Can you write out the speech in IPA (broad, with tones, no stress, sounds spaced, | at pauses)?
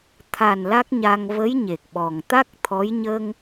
t̪ʰ a˨˩ n l a˦˥ k̚ ɲ a˧ ŋ v ə˧˥ j ɲ e˨˩ k̚ ɓ ɔ˨˩ ŋ t̪ a˦˥ k̚ t̪ʰ ɔ˧˥ j ɲ ə˧ ŋ